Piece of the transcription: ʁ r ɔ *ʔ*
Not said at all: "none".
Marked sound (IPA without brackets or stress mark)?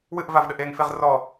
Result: none